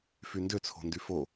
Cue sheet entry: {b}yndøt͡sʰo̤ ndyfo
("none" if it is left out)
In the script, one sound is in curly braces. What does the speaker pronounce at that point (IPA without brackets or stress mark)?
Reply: f